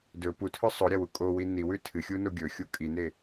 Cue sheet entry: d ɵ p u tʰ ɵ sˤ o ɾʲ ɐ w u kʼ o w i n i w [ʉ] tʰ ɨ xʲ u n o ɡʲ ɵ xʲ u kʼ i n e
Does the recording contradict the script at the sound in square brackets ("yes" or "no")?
no